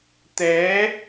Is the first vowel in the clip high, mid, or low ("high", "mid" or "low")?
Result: mid